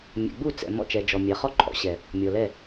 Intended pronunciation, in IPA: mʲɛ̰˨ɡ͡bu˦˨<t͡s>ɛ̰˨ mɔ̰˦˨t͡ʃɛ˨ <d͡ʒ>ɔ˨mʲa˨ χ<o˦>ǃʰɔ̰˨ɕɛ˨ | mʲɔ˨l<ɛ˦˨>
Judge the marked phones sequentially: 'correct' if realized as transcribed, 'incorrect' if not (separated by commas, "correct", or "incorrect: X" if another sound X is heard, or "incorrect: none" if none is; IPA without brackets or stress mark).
correct, correct, incorrect: ɔ˦, correct